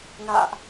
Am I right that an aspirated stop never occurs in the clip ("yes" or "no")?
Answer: yes